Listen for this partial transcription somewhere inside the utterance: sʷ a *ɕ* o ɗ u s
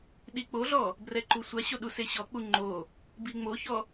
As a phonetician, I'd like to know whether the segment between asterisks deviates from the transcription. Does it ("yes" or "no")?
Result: no